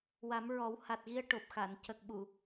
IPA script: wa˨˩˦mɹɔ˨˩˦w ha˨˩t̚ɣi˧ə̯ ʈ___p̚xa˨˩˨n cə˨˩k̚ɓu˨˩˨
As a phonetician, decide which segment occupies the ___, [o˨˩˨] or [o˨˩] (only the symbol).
o˨˩